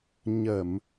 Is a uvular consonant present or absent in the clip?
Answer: absent